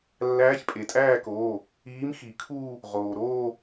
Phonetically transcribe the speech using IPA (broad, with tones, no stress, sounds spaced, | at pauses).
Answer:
lː æː˧˥ ç pʼ e˩ tʼ æː˥˧ k oː˩˧˩ | iː˧˥ m x i˨˩˦ kʰ uː˥˧ | ʁ oː˩ ɾ oː˥˧